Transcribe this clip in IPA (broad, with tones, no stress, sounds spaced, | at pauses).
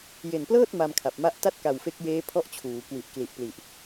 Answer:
j e˨˩ n p l ɤː˥˩ t̚ m a˧ m kʰ a˨˩ p̚ m a˦˥ ʔ t a˥˩ t̚ k a˨˩ w f e˦˥ k̚ j eː˦˥ pʰ ɔ˥˩ ʔ t͡ɕʰ uː˩˦ k w i˨˩ ʔ k l i˨˩ ʔ p l i˨˩ ʔ